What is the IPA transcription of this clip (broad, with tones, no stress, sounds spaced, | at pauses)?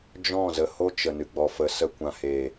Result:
d͡ʒ ɔ̃˦˨ z ə˨ h o˦ t͡ʃ ə˨ n ɨ˨ ɡ͡b ɔ˨ f ə˨ s ə˧ kʷ ã˨ h eː˨